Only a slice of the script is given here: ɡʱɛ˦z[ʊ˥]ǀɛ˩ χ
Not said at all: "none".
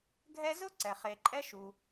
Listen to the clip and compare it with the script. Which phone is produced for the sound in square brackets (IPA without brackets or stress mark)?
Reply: ʊ˥